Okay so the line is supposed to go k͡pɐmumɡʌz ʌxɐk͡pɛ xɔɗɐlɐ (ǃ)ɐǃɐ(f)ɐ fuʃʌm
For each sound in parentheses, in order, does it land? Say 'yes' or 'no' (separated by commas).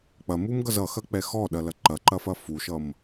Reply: yes, yes